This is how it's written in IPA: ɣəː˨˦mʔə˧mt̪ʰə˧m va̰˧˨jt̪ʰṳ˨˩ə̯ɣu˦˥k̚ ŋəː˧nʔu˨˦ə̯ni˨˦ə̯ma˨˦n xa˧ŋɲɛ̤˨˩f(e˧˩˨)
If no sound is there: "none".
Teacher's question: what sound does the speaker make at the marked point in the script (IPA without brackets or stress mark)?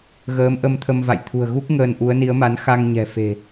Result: e̤˨˩